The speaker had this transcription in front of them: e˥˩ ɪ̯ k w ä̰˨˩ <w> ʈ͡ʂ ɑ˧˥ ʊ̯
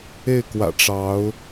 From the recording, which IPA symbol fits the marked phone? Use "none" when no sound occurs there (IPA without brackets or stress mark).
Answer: none